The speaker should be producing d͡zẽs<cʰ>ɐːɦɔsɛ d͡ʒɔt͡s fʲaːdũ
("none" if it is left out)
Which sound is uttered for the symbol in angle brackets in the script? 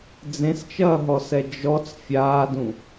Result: t͡ʃ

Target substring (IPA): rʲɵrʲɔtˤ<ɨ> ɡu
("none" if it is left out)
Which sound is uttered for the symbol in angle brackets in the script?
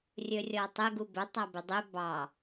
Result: ɪ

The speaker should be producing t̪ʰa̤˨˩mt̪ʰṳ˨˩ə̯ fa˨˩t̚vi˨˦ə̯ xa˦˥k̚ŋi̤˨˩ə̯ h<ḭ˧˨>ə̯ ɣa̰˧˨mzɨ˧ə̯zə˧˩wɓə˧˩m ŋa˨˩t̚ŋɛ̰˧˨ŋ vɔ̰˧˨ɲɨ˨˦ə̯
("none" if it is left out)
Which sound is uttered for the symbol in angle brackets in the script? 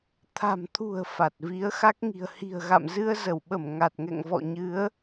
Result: i̤˨˩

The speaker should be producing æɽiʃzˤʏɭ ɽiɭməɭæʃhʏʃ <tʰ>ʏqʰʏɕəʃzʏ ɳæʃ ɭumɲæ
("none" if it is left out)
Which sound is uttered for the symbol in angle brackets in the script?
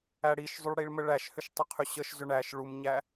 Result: tˤ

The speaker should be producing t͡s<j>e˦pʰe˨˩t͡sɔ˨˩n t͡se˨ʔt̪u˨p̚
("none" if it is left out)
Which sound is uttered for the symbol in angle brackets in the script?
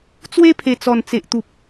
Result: w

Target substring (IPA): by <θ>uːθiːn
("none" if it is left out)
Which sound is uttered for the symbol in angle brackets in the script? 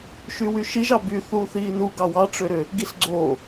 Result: θ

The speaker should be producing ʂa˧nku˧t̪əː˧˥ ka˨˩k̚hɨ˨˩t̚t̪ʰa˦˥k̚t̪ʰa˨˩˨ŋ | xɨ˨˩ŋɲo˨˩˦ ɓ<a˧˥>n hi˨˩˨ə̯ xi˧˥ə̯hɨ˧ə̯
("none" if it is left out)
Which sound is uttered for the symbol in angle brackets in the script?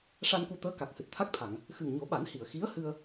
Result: a˨˩˦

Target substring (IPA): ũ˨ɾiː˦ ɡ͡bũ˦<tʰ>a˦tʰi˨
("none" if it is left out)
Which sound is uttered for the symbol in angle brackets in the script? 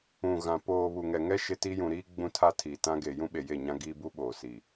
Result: tʰ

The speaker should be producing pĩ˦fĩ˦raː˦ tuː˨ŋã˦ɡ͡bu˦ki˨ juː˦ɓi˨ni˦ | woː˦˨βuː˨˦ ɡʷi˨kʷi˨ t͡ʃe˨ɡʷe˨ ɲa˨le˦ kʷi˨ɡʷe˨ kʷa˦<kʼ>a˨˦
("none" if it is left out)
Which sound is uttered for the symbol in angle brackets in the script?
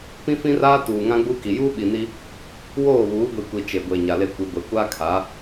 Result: kʰ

